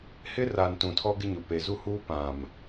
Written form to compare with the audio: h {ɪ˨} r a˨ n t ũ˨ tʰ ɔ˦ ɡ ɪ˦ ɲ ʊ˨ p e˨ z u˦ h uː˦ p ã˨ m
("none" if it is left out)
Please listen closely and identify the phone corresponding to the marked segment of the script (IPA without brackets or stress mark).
ɪ˦